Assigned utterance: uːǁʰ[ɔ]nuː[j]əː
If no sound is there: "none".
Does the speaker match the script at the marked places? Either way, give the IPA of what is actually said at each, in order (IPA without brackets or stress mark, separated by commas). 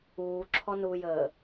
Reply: ɔ, j